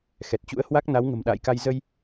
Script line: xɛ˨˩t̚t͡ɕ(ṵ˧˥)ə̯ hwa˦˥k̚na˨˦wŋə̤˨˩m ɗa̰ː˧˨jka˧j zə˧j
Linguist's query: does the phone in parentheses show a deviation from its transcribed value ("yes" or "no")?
no